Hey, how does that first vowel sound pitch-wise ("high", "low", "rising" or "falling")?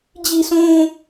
high